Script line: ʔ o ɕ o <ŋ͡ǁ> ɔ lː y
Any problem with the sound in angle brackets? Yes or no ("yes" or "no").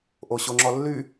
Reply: no